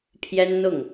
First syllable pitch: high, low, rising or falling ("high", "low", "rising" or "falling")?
high